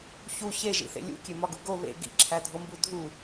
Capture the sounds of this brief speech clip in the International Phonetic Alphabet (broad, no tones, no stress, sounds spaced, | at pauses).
ç u ç e ʒ ḭ θ ḛ lʲ ṵ kʲ e m ɒ ɡ u ɡ o β ḛ ɡ ḭ ǁʰ æ dʱ o m b u dʱ u